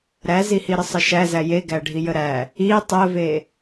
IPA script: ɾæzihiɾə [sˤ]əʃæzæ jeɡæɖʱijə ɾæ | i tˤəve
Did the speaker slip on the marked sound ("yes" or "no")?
no